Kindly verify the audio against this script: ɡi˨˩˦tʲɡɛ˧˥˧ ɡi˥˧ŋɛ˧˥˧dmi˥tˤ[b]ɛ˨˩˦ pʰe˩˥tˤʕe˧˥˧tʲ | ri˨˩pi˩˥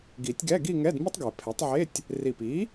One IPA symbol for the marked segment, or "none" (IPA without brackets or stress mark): ɡ